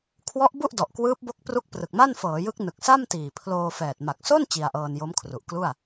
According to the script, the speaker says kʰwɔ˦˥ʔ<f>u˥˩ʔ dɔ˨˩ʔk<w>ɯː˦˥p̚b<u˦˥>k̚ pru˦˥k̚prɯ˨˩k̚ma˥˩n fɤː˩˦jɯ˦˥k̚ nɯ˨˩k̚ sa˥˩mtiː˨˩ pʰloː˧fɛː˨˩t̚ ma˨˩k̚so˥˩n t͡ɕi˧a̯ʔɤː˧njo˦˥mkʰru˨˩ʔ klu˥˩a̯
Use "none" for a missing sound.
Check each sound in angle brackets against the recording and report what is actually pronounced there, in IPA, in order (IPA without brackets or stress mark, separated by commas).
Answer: b, w, o˦˥